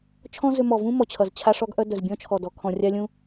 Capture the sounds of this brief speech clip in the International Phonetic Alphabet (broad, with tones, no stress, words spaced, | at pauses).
t͡ʃʰɔ̃˥zʏ˧ mɔ˩vũ˥ mɔ˩t͡ɕʰʌ˩z t͡ɕʰa˧ʂɔ˧ɡʔœ˧ dœ˩zbʲɔ̃˥t͡ʃʰɔ˩dɔ˩ kʰɔ̃˩rʲa˧lʲũ˧